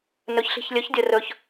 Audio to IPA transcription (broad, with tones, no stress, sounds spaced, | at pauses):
n ɵ˧˥ ç ɬ i̤˧ ç lʲ ɵ˧˥ ç dʲ ə˧ r ɵ˧ ç